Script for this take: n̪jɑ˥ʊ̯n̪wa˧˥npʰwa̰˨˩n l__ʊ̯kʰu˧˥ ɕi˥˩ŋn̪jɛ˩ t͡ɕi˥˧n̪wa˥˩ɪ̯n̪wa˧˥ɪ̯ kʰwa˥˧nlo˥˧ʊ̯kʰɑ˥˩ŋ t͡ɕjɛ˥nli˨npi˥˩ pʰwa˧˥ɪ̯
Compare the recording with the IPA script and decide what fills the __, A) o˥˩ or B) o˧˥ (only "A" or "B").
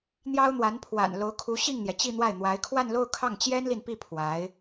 B